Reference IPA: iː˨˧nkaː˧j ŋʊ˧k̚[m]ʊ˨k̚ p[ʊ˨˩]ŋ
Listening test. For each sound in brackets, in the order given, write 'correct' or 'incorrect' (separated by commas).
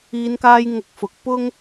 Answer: incorrect, incorrect